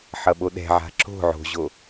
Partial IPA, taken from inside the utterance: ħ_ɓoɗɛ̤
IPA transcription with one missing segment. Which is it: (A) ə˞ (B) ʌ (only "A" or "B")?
B